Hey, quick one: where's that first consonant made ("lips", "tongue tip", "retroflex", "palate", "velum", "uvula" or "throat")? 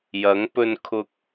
palate